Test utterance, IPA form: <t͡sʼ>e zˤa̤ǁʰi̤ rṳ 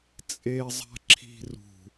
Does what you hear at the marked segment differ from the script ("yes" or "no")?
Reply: no